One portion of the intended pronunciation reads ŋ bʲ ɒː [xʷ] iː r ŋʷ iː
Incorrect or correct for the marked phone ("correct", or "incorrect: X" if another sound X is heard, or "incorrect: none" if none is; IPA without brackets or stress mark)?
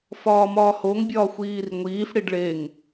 correct